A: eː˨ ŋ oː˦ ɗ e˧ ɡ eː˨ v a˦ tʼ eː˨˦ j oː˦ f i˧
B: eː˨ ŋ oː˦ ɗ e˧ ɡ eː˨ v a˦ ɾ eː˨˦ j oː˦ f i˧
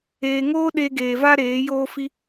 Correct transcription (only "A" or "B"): B